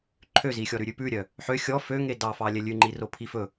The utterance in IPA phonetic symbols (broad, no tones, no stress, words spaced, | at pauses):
ǃʰøzixʲɔ ɾʉɾʲʉpʉɾʲœ | ħø xʲɔ fø ŋedɑ fɑlʲɛlʲʉ ŋ͡ǃiropʰifɵ